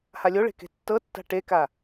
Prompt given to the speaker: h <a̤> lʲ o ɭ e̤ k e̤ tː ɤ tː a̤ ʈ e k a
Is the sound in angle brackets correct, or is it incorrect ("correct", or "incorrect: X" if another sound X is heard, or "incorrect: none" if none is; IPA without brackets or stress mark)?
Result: incorrect: a